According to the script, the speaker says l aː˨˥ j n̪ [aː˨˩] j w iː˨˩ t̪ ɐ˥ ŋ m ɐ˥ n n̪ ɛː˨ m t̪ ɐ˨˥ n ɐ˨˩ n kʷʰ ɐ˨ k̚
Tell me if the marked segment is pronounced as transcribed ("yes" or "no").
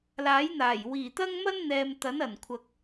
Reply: yes